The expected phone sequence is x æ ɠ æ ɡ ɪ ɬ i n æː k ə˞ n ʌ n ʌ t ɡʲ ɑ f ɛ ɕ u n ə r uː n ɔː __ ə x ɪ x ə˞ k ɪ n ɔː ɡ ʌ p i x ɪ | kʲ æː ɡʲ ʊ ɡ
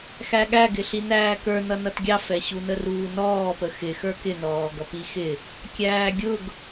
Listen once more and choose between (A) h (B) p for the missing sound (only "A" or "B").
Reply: B